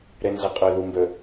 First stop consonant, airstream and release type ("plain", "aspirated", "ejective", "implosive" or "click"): ejective